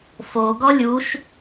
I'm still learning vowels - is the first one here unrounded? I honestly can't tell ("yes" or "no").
no